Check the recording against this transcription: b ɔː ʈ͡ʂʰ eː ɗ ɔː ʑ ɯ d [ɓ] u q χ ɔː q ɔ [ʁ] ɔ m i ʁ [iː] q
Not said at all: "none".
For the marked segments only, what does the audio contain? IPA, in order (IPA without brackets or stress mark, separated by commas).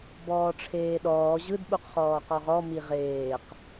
ɓ, ʁ, eː